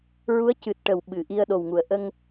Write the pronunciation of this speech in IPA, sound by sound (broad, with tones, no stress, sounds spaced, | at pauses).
ɹ u˧˥ ə̯ c ɨ˨˩ t̚ ʈ ə˨˩ w ɓ ɨ˨˩˨ ʔ i˧ ə̯ ɗ o˨˩ w ŋ u˨˩˨ ə̯ ʔ ə˧ ŋ